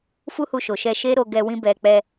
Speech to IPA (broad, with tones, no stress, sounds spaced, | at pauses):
f u˦ h u˧ ʃ o˨ ʃ ɛ˧ ʃ e˦ ɾ o˧ ɡ ɛ˧ w ĩ˦ b ɛ˧ k͡p ɛ˧